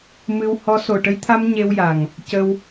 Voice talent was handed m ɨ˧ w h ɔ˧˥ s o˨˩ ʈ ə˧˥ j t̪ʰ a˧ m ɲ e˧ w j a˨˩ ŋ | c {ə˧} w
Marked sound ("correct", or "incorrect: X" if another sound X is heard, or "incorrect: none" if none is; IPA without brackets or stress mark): correct